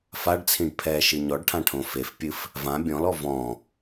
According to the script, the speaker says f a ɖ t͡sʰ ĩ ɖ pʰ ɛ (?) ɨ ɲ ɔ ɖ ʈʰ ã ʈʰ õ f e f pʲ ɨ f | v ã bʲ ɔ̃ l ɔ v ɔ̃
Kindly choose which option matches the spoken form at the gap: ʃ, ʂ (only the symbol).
ʃ